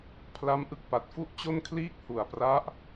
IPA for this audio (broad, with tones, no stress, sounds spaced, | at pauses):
pʰ l a˦˥ m ʔ ɯ˦˥ k̚ p a˨˩ t̚ f u˥˩ ʔ t͡ɕ o˥˩ n kʰ l iː˥˩ k̚ h u˨˩ a̯ p r a˦˥ ʔ